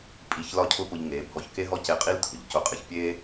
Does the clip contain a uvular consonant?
yes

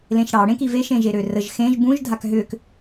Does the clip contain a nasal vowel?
yes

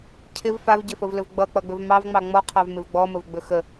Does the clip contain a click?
no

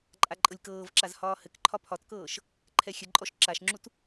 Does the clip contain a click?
yes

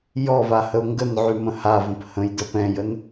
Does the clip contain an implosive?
no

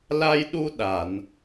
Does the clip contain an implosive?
yes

